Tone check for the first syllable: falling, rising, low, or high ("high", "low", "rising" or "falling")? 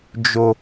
high